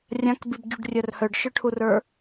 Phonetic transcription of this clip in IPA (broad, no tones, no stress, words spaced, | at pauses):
rʲãkbibɟuɖrʲœr hœɖʃœʈʰurə˞